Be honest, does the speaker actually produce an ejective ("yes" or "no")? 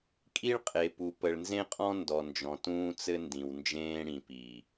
yes